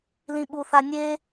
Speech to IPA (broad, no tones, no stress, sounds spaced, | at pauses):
l ĩ ɓ u θ a nʲ e